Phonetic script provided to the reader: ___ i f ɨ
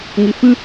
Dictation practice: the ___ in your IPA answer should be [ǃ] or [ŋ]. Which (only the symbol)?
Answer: ŋ